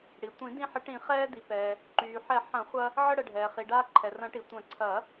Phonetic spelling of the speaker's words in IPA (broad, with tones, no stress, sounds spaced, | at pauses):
ɽ i˩ tʷ ĩ˨˩˦ d ĩ˧ ħ ə˨˩˦ ʈ ĩ˨˩˦ χ ɛː˧ d i˩ p ɛː˩ | ǃ yː˩ ħ ɛ˨˩˦ ħ ɐ̃˨˩˦ χʷ ɐ˧ | ʕ ə˧ ɽ ə˩ ɖʱ ɛː˩ χ i˩ ɖ aː˧ ǃʰ ɛ˩ r ɐ̃˨˩˦ ʈ i˩ tʷ ɐ̃˨˩˦ ǀʰ ɐ˨˩˦